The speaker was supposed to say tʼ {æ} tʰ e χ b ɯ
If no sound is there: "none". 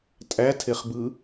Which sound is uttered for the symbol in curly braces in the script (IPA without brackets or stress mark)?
æ